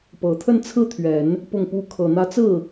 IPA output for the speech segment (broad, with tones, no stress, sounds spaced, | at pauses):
p ɤ˨˩ t̪ʰ ə˥˧ n t͡sʰ ɹ̩˥˩ t̪ʰ ɥ ɛ˨˩˦ n | p ʊ˥˩ ŋ p u˥ kʰ ɤ˨˩ n̪ ä˧˥ t͡s ɹ̩˥˩